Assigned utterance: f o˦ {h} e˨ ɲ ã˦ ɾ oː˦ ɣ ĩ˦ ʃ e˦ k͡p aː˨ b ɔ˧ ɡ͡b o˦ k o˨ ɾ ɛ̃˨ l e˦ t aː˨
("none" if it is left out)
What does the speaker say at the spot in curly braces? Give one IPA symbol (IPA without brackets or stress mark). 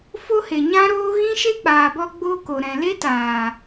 h